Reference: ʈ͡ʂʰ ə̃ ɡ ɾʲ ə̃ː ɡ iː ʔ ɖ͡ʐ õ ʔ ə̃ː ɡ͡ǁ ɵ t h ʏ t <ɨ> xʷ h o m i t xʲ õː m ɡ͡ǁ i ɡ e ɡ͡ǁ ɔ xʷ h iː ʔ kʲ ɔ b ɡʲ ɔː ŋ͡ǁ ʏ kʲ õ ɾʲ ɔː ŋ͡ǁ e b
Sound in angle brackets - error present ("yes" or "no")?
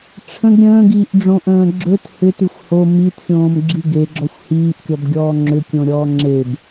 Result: no